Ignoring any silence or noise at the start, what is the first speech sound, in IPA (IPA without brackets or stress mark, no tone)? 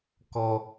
k